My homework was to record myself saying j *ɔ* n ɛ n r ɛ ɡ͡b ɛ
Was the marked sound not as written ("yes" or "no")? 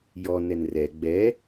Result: no